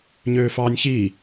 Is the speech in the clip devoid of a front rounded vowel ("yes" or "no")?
no